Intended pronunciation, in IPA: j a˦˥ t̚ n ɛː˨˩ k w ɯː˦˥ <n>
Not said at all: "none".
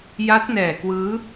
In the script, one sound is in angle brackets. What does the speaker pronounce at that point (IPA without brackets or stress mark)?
none